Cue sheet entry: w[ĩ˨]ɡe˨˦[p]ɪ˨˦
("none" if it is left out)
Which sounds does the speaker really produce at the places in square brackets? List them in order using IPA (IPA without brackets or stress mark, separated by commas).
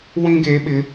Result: ĩ˦, ɓ